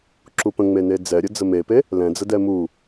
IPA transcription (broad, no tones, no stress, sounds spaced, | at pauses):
ǁ u p ə̃ ŋ͡m e n e d͡z ɛ ɾʲ ə d͡z ə m e p e | l ɛ̃ d͡z ə d ɛ m u